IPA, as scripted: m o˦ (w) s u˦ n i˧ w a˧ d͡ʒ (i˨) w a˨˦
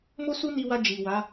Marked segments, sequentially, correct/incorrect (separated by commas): incorrect, correct